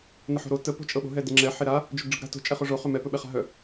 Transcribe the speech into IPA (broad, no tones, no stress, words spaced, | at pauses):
nəħo̤ɾo tə po̤t͡ʃʼɤɓo̤ ɦɛdeŋ͡ǁɛ ħeɾa | d͡ʒɵɡɖ͡ʐəɡɾa̤ to̤ t͡ʃʼɛχoʐo χɵmɛ pɵɓɛχa̤ɦœ